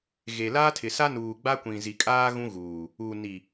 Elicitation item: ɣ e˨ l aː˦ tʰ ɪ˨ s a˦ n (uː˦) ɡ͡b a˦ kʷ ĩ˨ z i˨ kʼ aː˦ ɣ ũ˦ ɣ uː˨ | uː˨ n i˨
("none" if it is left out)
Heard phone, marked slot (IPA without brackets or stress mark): uː˨